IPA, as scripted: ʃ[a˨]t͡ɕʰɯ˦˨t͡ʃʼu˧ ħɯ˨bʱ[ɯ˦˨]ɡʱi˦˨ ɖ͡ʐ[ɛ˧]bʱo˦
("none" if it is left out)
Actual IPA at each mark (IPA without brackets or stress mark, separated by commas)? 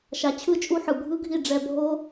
a˨, ɯ˦, ɛ˧